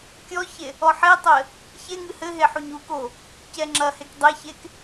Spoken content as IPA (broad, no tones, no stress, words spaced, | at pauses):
kʲɔçe | ɔħetˤɘ | çeŋɨ hɘ ɦeħuɲuko | cɛŋ͡ǁɐhek dˤeçek